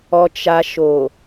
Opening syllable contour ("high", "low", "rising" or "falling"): low